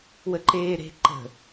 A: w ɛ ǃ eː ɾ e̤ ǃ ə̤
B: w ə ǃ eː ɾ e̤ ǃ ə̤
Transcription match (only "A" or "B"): B